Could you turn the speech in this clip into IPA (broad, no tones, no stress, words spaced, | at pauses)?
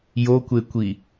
jokʷekʷi